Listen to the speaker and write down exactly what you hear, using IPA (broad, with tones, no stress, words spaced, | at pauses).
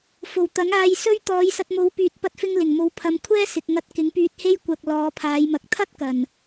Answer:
fo˨˩wt̪ɐ˨˥ŋaː˧j sɵ˥ɥ t̪ɔː˨˧jsɐ˧t̚mo˨˥w pyː˨t̚pɐ˧t̚fɪ˧ŋ lɪ˨˩ŋmo˨˥wpʰɐ˨˧m kʷʰɛː˥sɪ˨k̚ŋɐ˧t̚ kɪ˨˥ŋpyː˧t̚he˥j kʷɐ˧k̚ lɔː˨˧pʰaː˨˧jmɐ˨k̚ t̪ʰɐ˥t̚ kɐ˨˩n